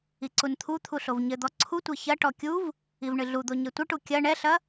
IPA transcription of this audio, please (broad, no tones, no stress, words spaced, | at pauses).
iǀunt̪ʰut̪ʰu ɬovɲɘd̪ɔ ǀʰutʷe çɐʈɔ kʲuv | ivɳɨɮud̪o ɲetʷɐʈu kʲɐ ɳɛɬɐ